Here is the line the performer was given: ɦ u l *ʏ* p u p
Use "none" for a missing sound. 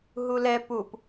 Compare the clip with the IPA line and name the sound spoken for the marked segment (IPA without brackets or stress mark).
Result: ɛ